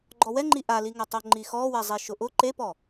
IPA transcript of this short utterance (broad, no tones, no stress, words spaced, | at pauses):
ɡ͡ǃɔwɛŋ͡ǃi ʔaliŋatˤo ŋ͡ǃixɔwɛ zˤiʃʊʔʊ ǃepɔ